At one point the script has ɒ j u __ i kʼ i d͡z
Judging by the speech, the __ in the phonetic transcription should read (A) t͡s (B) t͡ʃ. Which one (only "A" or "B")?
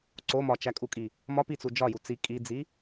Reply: A